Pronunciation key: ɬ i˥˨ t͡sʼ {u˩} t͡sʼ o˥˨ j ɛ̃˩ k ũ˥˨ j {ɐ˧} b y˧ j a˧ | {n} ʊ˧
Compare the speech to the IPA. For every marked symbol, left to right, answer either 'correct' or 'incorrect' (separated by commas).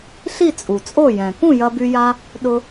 correct, correct, incorrect